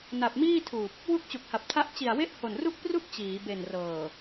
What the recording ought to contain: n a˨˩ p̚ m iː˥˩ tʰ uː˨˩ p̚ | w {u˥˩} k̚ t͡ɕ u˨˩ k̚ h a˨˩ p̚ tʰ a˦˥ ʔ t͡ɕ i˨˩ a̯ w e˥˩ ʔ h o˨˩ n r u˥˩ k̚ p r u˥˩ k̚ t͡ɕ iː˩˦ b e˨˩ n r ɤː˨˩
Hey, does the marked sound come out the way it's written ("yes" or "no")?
yes